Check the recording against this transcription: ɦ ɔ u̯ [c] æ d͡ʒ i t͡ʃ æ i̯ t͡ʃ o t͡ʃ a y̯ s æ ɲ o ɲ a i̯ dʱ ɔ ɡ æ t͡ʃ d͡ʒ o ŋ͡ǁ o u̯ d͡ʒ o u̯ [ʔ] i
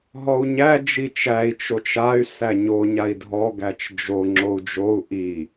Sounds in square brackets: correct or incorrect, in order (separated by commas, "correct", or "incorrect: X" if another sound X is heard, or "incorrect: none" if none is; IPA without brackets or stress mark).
incorrect: ɲ, correct